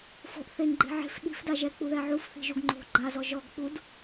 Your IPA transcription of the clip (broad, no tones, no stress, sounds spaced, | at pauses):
f o̤ ʔ θ e ŋ ɡ͡ǃ e̤ ʕ e̤ f ɗ i̤ f d a ʒ ɛ k͡p u ð ɛ ʕ u f θ i̤ ʒ u ɡ ŋ͡ǃ o̤ ɡ͡ǃ a z ɔ ʒ ɔ ɡ k͡p u d